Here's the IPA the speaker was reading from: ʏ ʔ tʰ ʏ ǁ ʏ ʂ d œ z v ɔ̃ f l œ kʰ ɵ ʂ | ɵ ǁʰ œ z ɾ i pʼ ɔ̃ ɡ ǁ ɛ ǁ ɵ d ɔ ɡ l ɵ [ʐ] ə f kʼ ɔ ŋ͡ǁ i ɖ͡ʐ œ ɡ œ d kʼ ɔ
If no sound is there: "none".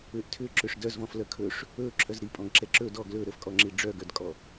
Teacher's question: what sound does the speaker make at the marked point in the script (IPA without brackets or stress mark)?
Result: ɾ